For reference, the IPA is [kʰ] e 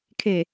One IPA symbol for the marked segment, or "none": kʰ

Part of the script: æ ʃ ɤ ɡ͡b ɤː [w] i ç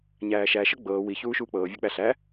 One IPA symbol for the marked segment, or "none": w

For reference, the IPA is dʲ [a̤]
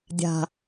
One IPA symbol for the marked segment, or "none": a̤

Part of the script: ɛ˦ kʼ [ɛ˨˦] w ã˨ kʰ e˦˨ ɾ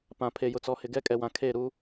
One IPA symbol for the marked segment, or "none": ɛ˨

